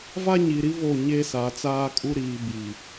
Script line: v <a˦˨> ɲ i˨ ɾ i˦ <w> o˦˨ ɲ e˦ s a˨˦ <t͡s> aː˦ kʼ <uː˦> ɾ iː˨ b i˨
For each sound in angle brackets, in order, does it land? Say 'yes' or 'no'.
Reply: no, no, yes, no

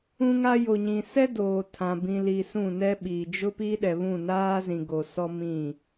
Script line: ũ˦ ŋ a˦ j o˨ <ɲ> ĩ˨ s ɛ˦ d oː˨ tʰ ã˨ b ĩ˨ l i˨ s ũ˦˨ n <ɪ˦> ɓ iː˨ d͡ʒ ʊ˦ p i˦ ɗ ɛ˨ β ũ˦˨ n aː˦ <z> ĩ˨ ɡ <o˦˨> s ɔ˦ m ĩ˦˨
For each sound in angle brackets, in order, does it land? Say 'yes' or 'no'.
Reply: yes, no, yes, no

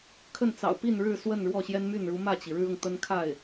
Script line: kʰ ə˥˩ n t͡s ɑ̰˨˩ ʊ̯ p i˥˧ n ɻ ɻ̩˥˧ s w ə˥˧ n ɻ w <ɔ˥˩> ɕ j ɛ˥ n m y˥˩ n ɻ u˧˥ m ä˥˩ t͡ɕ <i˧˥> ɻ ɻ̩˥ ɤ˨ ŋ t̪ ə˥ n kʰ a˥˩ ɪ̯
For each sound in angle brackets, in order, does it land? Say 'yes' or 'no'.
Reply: yes, no

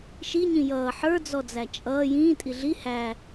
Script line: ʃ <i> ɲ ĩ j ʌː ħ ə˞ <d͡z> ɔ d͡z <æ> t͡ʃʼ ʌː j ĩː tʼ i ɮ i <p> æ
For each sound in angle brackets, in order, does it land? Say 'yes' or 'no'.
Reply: yes, yes, yes, no

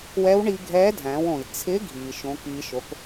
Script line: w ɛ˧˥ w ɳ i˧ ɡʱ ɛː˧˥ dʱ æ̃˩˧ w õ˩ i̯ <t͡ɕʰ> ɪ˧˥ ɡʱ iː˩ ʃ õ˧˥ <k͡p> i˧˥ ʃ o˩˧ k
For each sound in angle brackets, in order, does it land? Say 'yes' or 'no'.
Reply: no, no

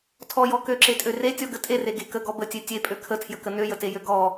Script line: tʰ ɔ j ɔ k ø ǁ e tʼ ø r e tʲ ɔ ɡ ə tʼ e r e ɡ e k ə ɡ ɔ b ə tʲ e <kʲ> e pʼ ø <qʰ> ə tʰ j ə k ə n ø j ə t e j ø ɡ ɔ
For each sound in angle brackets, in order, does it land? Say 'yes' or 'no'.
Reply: no, no

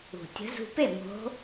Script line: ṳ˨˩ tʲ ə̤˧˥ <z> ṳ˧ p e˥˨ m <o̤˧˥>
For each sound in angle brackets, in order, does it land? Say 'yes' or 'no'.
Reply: yes, yes

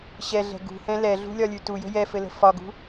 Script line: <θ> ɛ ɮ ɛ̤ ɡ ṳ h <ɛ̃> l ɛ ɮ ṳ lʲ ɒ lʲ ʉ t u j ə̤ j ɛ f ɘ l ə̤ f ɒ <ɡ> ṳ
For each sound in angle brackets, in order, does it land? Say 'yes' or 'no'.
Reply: no, yes, yes

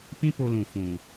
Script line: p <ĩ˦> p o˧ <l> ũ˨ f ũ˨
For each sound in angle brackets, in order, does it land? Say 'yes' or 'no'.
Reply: yes, yes

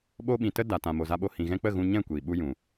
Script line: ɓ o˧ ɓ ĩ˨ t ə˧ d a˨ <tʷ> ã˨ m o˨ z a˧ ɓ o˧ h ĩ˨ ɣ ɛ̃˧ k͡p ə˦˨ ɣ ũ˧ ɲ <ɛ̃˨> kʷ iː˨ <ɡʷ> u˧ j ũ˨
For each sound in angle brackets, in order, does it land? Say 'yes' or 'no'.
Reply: no, no, no

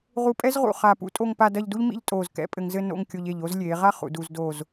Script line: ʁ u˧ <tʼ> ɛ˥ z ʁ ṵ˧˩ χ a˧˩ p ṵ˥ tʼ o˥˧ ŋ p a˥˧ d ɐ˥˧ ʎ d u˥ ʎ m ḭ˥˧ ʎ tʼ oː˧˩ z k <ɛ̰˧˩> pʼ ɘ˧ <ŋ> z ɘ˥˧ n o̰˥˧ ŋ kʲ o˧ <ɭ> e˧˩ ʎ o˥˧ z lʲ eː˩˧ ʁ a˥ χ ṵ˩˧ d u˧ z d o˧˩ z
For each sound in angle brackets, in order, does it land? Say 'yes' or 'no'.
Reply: no, no, yes, no

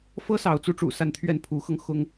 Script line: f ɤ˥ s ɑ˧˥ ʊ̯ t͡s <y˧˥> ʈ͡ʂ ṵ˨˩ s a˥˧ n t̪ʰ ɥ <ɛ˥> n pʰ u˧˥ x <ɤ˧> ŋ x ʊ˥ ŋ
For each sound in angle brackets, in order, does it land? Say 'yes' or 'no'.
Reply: no, no, yes

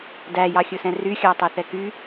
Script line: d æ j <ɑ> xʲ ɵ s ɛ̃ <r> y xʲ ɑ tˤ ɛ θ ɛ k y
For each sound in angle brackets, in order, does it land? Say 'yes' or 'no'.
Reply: yes, yes

